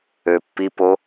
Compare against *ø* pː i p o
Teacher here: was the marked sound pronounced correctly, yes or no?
yes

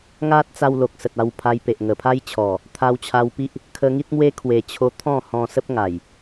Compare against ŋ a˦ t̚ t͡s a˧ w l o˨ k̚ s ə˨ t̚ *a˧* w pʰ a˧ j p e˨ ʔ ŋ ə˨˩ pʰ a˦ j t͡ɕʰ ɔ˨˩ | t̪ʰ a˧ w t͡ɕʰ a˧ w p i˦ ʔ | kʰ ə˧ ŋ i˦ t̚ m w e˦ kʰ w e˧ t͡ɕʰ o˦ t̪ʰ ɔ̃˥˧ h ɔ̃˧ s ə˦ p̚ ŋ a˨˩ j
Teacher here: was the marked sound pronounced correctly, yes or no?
yes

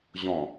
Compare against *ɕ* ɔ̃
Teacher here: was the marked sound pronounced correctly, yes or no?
no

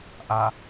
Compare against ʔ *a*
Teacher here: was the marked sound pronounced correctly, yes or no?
yes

